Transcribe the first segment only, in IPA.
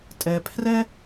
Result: tʼ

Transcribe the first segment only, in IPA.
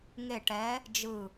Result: ŋ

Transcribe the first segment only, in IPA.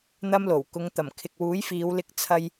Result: n̪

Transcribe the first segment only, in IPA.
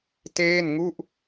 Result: t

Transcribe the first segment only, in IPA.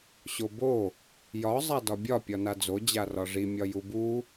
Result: ɕ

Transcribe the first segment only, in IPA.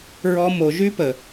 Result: ɹ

